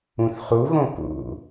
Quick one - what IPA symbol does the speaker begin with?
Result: ũ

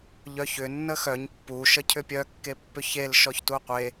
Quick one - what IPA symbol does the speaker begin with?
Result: ʎ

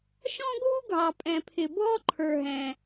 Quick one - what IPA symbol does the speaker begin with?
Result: ʃ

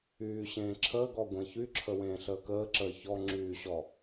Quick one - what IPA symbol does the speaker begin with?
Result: yː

